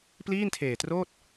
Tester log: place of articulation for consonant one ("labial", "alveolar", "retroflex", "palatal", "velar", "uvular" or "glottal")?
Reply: labial